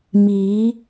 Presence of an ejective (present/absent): absent